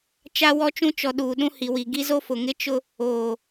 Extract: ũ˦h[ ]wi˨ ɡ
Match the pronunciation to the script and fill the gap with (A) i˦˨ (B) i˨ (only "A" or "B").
B